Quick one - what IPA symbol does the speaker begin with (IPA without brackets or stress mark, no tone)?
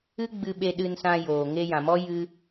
ɨ